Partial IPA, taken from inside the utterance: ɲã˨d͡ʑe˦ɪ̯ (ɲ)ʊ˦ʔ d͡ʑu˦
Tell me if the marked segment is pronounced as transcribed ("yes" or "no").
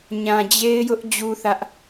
no